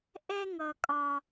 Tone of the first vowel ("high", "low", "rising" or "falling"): high